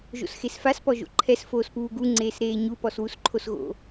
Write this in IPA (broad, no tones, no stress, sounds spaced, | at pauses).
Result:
ʒ o̰ s x e s f a s p ɔ ʒ o̰ ǃʰ ɛ s f oː s p uː ɡ u ŋ͡ǀ eː s ɾ eː ɲ u p ɔ s w u s ǃʰ o s ɣ o̰